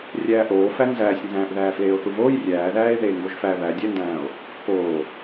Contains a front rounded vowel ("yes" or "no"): no